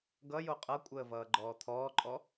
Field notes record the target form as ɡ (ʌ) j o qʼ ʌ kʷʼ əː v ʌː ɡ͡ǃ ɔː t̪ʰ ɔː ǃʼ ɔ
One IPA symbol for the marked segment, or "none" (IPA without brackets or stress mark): ʌ